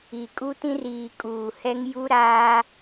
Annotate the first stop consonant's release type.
ejective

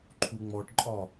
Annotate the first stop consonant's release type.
click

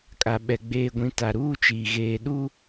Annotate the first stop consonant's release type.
ejective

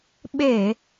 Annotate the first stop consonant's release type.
implosive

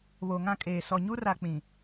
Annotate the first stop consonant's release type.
ejective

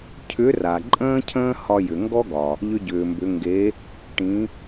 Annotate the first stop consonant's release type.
aspirated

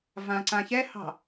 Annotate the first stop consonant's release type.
click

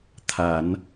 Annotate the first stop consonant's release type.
aspirated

